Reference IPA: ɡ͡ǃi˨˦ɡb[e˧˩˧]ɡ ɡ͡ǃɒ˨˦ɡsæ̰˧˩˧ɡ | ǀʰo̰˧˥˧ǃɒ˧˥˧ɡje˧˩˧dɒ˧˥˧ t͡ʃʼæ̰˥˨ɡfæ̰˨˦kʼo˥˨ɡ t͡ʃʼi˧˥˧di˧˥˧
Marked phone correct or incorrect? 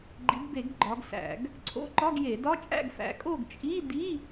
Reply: correct